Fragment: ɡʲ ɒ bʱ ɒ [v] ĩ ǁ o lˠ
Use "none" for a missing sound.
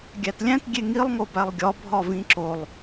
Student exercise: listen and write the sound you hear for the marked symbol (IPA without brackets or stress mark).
v